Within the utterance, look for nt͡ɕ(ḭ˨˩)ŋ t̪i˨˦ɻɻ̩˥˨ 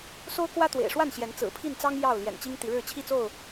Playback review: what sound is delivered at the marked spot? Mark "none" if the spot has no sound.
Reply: i˦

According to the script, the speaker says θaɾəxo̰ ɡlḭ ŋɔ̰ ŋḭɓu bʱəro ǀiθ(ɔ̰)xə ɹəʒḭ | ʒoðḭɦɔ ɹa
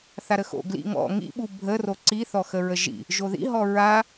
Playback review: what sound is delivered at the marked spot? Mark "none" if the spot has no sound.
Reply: ɔ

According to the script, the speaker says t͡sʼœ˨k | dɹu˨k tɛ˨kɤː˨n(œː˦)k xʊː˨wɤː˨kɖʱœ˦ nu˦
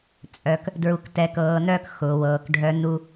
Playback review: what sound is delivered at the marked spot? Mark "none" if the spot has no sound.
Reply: œː˦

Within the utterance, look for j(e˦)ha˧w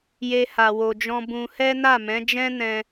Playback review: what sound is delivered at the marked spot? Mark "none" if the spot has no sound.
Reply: e˦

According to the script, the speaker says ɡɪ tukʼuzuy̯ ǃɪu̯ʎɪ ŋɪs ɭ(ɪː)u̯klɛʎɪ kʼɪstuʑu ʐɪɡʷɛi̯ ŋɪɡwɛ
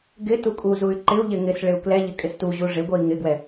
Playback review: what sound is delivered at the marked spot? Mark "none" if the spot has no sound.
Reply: ɪ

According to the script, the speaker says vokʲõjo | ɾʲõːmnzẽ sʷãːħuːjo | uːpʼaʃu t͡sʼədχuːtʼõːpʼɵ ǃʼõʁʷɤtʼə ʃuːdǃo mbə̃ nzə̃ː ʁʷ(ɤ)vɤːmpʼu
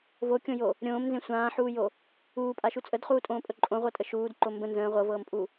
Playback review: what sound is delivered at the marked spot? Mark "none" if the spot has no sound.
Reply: ɤ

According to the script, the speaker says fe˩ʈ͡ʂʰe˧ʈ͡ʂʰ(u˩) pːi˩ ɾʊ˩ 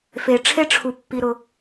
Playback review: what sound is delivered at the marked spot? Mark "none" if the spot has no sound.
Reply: u˩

